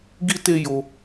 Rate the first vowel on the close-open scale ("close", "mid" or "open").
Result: close